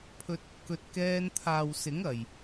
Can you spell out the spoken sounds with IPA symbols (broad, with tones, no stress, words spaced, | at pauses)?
pʰɵ˧t̚ | kɵ˨t̚kɛː˧n t̪ʰaː˨w sɪ˨˥ŋ ɐ˨j